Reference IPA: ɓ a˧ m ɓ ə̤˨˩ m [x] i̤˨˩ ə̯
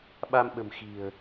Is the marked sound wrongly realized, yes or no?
no